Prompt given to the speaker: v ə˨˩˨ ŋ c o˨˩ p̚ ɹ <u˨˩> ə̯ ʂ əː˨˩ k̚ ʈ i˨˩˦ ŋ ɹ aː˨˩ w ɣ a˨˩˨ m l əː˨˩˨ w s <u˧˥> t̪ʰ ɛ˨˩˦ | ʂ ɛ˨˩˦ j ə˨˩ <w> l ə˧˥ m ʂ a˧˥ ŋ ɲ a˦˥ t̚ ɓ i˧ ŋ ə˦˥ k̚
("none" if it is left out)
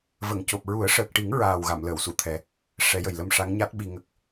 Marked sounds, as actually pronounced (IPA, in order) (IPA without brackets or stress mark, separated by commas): u˨˩˦, u˨˩˨, j